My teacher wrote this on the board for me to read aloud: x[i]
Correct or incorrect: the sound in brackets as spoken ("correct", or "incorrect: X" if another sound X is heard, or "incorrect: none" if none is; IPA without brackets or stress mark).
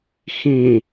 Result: incorrect: ĩ